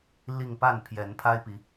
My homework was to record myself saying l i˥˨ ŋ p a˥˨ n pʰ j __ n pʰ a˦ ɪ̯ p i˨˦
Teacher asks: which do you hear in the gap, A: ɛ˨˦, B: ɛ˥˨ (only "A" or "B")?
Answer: A